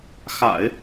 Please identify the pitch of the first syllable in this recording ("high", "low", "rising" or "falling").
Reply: low